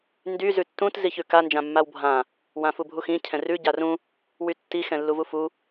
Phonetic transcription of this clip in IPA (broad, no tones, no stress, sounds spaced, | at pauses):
n d y z ʉ tː ũ t z i ç ʉ k a n d͡ʒ ã mː a w bʱ ã | w ã f u bʱ u x ĩ cʰ ɛ̃ r ʉ ɟ a r ũ | w y tː i x ɛ̃ lː u v u f u